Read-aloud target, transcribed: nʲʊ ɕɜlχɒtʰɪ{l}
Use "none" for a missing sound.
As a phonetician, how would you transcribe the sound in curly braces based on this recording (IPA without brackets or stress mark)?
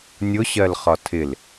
l